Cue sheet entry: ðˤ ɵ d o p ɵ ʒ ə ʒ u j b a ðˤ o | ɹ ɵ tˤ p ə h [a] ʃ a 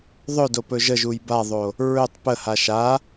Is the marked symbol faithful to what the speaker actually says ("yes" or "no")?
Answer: yes